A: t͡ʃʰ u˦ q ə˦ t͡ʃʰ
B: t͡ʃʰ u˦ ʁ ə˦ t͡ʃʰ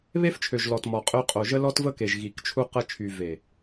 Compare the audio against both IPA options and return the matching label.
A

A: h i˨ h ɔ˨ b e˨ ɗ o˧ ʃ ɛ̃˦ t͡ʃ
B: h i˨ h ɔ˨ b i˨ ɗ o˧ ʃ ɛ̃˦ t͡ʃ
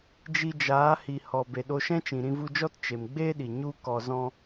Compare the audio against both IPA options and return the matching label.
A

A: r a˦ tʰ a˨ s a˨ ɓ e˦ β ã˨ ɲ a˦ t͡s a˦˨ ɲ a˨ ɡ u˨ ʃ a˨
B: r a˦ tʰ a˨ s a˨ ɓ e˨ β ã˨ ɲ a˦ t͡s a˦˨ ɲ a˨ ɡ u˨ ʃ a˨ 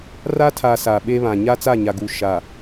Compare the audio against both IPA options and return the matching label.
A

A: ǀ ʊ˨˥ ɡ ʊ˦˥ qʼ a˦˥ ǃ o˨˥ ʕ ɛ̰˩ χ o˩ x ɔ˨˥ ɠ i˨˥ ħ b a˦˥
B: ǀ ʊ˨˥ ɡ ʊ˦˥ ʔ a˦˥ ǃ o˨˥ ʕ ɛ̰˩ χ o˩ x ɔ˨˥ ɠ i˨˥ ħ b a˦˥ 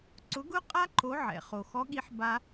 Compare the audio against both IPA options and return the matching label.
A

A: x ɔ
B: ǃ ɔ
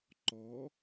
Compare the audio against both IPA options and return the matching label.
B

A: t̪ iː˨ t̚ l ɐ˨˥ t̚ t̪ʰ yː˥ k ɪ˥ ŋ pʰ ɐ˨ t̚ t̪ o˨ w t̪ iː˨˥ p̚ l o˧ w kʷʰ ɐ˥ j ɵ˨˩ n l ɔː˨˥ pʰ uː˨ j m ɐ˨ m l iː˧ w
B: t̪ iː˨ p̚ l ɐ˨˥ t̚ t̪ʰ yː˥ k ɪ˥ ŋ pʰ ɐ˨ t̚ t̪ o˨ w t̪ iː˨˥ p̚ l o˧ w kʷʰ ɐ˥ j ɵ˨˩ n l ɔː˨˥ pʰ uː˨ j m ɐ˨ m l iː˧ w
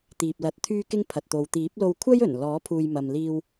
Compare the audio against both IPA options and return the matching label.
B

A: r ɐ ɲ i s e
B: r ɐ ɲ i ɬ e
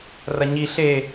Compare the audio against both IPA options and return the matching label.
B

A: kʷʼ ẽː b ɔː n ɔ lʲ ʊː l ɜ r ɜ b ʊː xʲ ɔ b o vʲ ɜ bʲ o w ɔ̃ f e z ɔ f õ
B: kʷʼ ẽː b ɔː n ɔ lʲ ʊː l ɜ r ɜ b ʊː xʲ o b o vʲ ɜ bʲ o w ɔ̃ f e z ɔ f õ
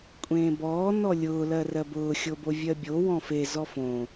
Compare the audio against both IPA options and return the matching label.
B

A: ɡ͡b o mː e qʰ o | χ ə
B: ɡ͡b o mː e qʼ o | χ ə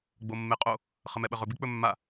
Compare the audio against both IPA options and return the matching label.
B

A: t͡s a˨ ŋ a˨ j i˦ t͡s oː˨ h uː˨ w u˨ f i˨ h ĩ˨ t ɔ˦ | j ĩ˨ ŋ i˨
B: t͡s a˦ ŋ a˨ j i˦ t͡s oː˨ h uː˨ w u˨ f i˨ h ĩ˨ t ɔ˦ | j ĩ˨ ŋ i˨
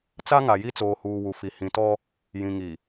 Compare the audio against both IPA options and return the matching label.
B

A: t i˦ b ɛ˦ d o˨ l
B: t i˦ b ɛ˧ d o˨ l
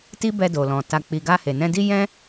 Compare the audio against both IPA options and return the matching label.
B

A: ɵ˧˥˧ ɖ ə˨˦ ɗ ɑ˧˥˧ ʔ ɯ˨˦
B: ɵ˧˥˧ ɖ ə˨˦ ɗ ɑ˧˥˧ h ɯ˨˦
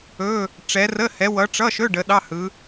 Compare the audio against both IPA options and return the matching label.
B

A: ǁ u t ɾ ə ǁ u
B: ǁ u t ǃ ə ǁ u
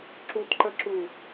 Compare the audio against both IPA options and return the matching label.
B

